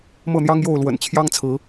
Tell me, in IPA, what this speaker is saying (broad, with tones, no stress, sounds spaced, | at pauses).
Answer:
m ɤ˥˨ n̪ j ɑ˦ ŋ j o˥˨ ʊ̯ l w ə̰˨˩ n t͡ɕʰ j ɑ˦ ŋ t͡sʰ ɹ̩˨˦